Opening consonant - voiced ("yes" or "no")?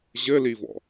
yes